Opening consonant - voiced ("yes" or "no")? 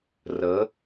yes